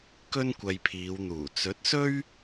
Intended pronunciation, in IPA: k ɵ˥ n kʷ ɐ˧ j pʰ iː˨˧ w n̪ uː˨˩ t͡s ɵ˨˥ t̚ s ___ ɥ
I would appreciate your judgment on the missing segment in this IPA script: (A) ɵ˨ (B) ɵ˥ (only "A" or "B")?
B